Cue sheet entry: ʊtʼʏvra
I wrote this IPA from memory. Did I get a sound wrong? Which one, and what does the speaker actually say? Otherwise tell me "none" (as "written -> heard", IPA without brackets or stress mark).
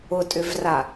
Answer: none